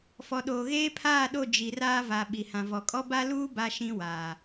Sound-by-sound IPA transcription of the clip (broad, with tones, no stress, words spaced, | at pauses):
fɔ˨ɗoː˨ ɣeː˦pʰaː˦˨ɗo˦˨ d͡ʒi˨raː˦va˨ ɓi˨hã˨vɔ˨ kʼɔ˦ba˦luː˦ ba˦ʃĩ˦waː˨